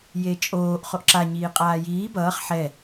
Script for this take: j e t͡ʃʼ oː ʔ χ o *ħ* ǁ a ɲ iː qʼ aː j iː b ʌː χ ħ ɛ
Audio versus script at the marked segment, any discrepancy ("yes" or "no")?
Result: yes